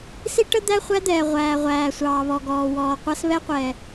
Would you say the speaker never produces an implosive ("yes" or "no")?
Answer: yes